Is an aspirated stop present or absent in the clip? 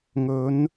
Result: absent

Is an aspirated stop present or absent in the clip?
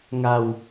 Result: absent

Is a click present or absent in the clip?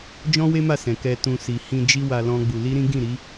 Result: absent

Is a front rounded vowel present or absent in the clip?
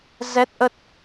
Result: absent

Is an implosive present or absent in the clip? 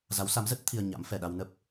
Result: present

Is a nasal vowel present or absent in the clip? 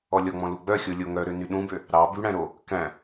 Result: present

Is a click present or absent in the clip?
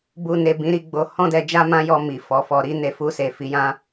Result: absent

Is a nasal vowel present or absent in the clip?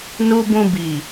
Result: present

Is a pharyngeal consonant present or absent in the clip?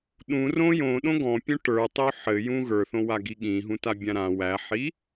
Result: present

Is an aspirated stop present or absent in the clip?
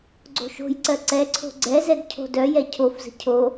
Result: present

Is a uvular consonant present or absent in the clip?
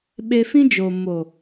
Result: absent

